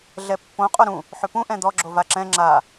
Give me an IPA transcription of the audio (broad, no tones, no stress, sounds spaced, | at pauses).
ɮ ɛ pː õ qʼ o ɾ ũ | ħ ʏ p ũ ʔ ɛ̃ d̪ ɔ ɡ͡ǁ o v a ǁ ɛ̃ ŋ͡ǁ a